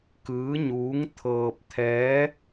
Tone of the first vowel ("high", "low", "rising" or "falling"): rising